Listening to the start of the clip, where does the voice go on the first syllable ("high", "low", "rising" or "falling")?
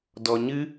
low